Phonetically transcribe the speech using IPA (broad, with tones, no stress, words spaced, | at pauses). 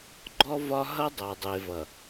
ɡ͡ǃɔ˦vɒ˦ ɦʌ˦dˤa˨dˤe˨vʌ˨